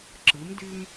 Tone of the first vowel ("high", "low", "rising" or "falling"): rising